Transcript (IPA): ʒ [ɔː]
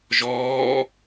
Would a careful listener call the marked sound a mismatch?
no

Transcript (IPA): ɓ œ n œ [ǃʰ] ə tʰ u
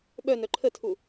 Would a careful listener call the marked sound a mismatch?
no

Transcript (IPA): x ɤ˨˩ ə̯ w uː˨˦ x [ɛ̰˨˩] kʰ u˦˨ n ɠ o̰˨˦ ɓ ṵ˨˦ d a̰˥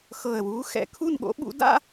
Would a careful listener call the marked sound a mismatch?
no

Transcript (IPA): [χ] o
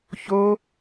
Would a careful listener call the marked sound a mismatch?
yes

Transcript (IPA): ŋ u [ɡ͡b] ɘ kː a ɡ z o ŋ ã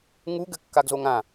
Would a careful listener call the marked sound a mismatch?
yes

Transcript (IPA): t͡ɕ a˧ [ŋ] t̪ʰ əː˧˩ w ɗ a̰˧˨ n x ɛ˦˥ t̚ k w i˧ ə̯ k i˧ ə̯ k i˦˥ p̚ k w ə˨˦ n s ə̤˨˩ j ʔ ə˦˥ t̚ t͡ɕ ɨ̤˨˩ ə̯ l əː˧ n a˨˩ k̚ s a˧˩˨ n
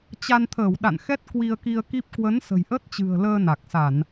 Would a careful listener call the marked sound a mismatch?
yes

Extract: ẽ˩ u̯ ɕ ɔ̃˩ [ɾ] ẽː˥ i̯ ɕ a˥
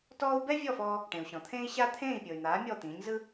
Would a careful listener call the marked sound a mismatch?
yes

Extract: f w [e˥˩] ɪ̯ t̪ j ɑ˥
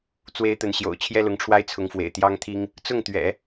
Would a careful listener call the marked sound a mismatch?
yes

